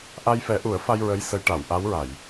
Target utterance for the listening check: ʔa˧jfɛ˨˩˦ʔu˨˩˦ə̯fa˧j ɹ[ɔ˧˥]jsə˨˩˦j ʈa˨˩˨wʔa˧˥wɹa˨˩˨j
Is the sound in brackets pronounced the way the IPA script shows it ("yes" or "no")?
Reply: no